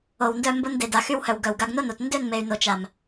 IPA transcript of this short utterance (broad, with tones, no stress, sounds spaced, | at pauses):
o˨ w n d œ˧ m b o˧ n d e˨ d a˨ x y˧ w h œ˨ w ɡ œ˨ w ɡ a˧ ɡ n o˦ n o˨ t n d ø˦˨ n m e˨ y̯ n o˨ t͡ʃ a˨ m